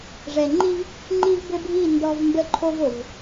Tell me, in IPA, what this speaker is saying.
ʐ ɛ˨ ŋ͡ǃ i˦ v | ŋ͡ǃ i˦ v b ɘ˦ bʱ i˦˨ n d ɔ˦ v m b ə˦ ǃʰ o˦ v o˨ v

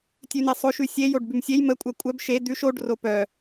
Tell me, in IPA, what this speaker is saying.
tʲ ʉ n e sˤ o ʃ ʉ sʲ e j o ɖ b ʉ m sʲ e j m ə kʷʼ ɜ kʷʼ œ b ʃ e d̪ ʉ ʃ o ɖ r o p œ

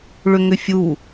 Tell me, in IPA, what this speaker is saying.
ɭ ʏ ŋ ʏ fʲ u

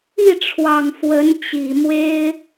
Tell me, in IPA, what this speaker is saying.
i˥˩ ʈ͡ʂʰ w ɑ˨˩ ŋ f w ə˧˥ n t͡ɕ i˨˩ m w e˥ ɪ̯

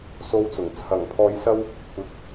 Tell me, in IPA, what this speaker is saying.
s o˥ w t͡s ʊ˨˩ ŋ t͡sʰ ɐ˨˩ ŋ pʰ ɔː˧ j s ɐ˥ w | kʷ ɪ˨˥ k̚

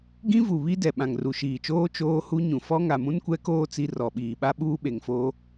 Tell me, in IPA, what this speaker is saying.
ɡ ĩ˦ v u˨ β i˦ d ɛ˨ ɓ ã˨ ŋ r u˨ ʃ iː˨ t͡ʃ oː˦ t͡ʃ oː˦ h u˦ ɲ ũ˨ f ɔ˦ ŋ a˨ m ũ˦ n kʷ ɛ˦ k oː˦ t͡s i˦ r ɔ˨ ɓ iː˨ ɓ a˦ ɓ uː˦ ɓ e˨ ŋ f oː˦

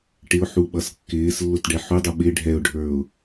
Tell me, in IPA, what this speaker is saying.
ʈ ɪ ʊ̯ ħ u ɓ ʌ s kː ɪː s lː ʊ t ɖ ɛ ħ u dˤ u ɓ ɪ ɖʱ ɛ ʊ̯ ɖʱ ə˞ ʊ̯

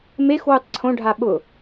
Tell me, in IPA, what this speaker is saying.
m e x w u tˤ ǀʰ õ ɖʱ a ɓ ʊ

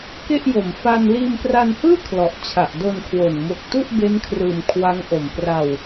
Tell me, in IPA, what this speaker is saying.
k e˥˩ ʔ j o˨˩ m f a˧ n l iː˧ m p r a˧ n h ɯː˥˩ kʰ l ɔ˨˩ ʔ t͡ɕʰ a˨˩ ʔ d o˧ n kʰ w o˨˩ n m o˨˩ k̚ t u˥˩ ʔ b e˦˥ n kʰ r ɯː˨˩ m kʰ w a˦˥ ŋ ʔ o˨˩ m p r a˧ w

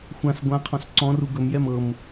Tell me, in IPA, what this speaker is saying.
xʷ ã s ɡʷ ã qʰ ɔ̃ s ǀ ɔ̃ r u ɡ ɵ m j ɛ m ɤ m

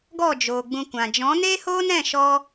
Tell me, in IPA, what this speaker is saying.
ɡ ɔ˦˨ d͡ʒ oː˨ ɡ͡b ũ˧ kʷ ã˨ d͡ʒ ɔ̃˨˦ n e˦ h oː˦ n ɛ̃˦˨ ʃ ɔ˦

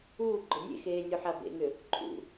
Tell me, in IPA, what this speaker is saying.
uː ɡ͡ǃ ʊ nʲ ḛ x eː nʲ u ħ a b ḛ ŋ ʏ | ǃʰ ṵ

